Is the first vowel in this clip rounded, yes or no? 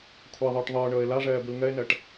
no